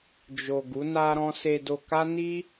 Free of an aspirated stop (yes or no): yes